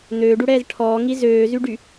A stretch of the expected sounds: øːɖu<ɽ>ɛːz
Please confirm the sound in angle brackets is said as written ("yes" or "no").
yes